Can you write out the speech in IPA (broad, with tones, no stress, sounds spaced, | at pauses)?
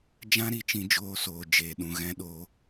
d͡ʒ ã˦ ɾ i˨ t͡ʃ ĩ˧ d͡ʒ oː˧ s oː˨ d͡ʒ eː˨ ɗ ũ˨ ɣ ɛ̃˧ ɗ oː˨˦